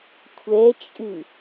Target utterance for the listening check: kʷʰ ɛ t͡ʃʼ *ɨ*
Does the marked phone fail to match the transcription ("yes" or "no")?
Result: no